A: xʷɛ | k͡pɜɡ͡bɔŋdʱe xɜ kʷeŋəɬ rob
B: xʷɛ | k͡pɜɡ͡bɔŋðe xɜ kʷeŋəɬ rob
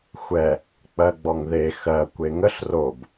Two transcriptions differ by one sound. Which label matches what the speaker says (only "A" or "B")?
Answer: B